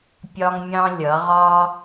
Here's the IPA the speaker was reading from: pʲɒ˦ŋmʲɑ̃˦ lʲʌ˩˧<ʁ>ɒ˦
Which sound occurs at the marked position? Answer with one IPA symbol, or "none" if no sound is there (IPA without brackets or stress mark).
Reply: ʁ